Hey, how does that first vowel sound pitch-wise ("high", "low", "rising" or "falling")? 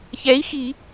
rising